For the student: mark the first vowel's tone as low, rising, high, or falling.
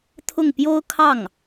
falling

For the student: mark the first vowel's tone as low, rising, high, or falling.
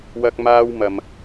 high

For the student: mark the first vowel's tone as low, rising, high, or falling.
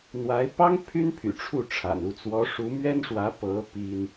rising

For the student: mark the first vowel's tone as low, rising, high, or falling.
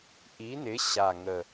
rising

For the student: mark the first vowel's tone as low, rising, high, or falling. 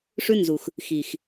high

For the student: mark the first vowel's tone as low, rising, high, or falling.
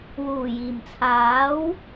low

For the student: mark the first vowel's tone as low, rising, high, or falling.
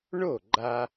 falling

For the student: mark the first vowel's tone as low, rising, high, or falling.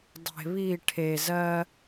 low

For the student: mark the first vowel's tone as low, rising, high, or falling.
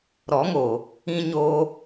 rising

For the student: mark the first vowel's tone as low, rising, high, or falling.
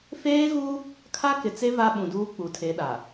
high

